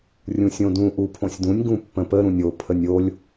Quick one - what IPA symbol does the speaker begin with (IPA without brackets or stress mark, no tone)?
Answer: rʲ